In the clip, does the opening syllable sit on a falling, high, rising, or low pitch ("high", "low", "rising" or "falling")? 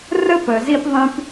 high